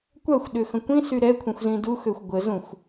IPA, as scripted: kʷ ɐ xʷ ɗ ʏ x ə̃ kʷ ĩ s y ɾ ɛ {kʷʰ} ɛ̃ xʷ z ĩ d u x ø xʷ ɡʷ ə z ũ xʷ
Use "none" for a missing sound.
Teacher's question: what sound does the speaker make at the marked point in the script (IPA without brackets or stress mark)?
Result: kʷʰ